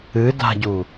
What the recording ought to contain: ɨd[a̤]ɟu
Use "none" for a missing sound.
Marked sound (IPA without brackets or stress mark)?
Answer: a̤